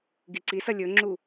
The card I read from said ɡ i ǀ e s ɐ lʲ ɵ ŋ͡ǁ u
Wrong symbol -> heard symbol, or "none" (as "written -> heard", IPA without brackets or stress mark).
e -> i